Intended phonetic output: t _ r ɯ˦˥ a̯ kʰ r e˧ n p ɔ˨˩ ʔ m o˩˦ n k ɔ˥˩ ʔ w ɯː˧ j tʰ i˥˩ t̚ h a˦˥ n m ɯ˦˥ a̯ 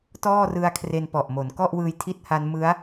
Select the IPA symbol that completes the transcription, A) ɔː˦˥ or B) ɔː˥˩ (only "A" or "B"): B